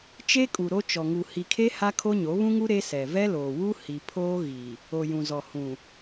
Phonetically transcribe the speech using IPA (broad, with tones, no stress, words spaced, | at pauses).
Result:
t͡ʃe˦kʼu˨ ɾo˦ t͡ʃɔ˨ŋu˨ hi˨kʰe˦ ha˦kʰo˦ɲo˨˦ βũ˦ŋu˦ ɾe˦sɛ˨ vɛ˦loː˨wu˦ hi˨pʰoː˦ɣi˨ | o˨jũ˨zɔ˨ hũ˨